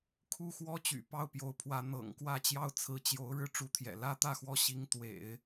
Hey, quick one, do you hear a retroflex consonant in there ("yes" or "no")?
yes